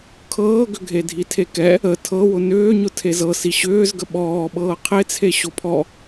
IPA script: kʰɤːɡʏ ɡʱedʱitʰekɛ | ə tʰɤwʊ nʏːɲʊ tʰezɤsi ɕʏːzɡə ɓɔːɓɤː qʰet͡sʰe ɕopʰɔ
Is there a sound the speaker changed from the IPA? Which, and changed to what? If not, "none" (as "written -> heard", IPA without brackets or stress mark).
none